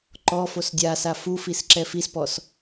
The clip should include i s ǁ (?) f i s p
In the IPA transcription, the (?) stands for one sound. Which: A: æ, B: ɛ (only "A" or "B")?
B